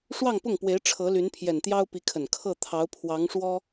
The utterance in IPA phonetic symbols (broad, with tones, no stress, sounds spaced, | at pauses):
ʂ w ɑ˥˧ ŋ p ʊ˥˩ ŋ p w e˧˥ ɪ̯ ʈ͡ʂʰ ɤ˧˥ l y˧˥ n pʰ j ɛ˨˩ n t̪ j ɑ˥ ʊ̯ p i˧˥ kʰ ə˨˩ n kʰ ɤ˥˩ t̪ʰ ɑ˧˥ ʊ̯ pʰ w ɑ˧˥ ŋ ʂ w ɔ˥